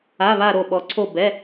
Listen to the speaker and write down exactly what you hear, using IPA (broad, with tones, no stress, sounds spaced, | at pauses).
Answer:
a˩˧˩ β a˧˩ ɾ o˧˩ ɓ ɔ˩˧ ǀʰ o˧˩ b ɛ˩˧˩